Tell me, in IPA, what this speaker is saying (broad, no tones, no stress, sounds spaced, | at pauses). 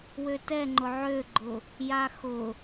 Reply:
w ø t ɛ ŋ͡ǃ ʊ ʕ ø ɡ͡ǃ ʊ | j a x ʊ